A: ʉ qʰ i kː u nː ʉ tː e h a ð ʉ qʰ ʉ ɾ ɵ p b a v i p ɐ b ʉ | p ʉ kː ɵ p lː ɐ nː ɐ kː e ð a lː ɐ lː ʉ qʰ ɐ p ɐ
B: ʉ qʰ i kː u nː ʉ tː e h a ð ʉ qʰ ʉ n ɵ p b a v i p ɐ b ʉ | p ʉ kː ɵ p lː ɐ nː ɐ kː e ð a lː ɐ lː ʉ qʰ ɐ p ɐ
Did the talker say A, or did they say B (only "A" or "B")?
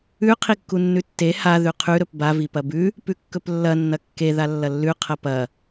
A